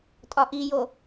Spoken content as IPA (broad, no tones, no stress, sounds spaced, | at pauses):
tʼ ɒ ʔ i j o